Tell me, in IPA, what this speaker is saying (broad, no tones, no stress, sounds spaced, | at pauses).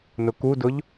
n ʊ k u d ʊ ʎ